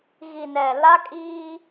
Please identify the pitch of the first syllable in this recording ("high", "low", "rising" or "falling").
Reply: low